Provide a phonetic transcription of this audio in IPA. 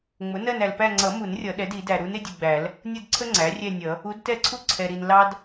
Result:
ŋ͡m ʊ˩˥ n ɜ˥˧ n æ˨ l p æ˥˧ ŋ͡ǀ ʌ˨˩˦ m u˨˩˦ n rʲ ʌ˨˩˦ ɗ ɛ˩˥ d i˨˩˦ d æ˨ ɾ u˧˥ n ɪ˩˥ dʲ u˨ ɡ͡b æ˨˩˦ l | nʲ ʊ˥˧ d ǀʰ ə˥ ŋ͡ǀ æ˩˥ rʲ ɛ˥˧ nʲ ʌ˨˩˦ | u˧˥ d t ɛ˥˧ ǀʰ u˥ ǀʰ ɛ˨ ɾ i˨ n l ɑ˥ d

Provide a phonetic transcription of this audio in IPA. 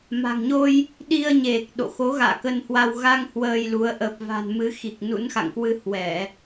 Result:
m a̤˨˩ ŋ ɲ o˧ j | ɗ i˧ ə̯ ɲ e˨˩ k̚ ɗ o̰˧˨ x o˨˦ ɣ a̰ː˧˨ k ə˧ n h w a˧ w ɣ a˧ ŋ h w əː˧ j l u˨˦ ə̯ ʔ ə˨˩ p̚ v a̤˨˩ n m ɨ˨˦ x i˨˩ k̚ n ṵ˧˥ n x a̰˧˨ ŋ k w ɨ˧ h w ɛ˧˩˨

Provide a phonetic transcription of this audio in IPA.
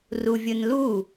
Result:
r u vʲ ɯ n l u

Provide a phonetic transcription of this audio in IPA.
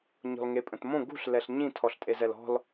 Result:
ɲ ɔ̤ l ŋ e pʼ ə̃ t m õ ɡ ṳ ɬ l ɛ ɬ ɲ ĩ tʰ ɔ ɬ tʼ e z ɛ l ɔ̤ l

